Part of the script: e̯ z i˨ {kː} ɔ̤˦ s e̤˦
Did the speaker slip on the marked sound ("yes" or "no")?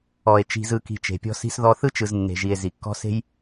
no